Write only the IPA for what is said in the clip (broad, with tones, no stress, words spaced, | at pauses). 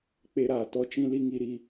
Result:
k͡pe˧ɾaː˨ tɔ˦t͡ʃĩ˦li˦ŋi˧ ɾi˧